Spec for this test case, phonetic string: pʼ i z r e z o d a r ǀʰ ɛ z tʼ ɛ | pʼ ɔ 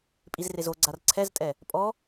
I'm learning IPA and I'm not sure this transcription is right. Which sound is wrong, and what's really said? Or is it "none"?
d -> ɡ͡ǀ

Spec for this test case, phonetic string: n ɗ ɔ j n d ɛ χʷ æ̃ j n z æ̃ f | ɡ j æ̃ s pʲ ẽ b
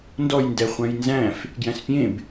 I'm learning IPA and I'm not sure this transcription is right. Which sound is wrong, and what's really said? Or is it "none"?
ɗ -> d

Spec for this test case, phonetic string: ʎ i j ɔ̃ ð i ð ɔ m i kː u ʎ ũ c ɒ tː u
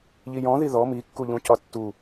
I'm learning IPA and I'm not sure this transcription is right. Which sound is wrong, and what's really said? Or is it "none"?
none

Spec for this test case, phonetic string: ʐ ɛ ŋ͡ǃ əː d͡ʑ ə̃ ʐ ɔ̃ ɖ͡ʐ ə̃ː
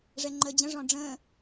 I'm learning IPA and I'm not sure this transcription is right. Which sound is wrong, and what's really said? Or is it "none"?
none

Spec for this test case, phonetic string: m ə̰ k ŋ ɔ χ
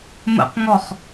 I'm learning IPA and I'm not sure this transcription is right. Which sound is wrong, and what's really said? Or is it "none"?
k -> q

